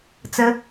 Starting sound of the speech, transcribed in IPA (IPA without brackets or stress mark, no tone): t͡s